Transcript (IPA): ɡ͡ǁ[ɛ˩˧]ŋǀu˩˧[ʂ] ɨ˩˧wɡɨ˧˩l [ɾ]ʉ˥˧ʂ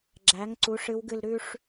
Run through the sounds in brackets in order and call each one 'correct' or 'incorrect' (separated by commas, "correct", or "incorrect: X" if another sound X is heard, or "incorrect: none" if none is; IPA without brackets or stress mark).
incorrect: æ˩˧, correct, correct